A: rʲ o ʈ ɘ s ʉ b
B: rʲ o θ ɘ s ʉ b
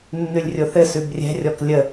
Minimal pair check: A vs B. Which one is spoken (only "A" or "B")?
B